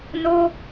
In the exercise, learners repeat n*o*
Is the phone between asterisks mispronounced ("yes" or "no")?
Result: no